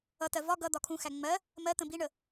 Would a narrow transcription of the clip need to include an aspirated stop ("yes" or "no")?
yes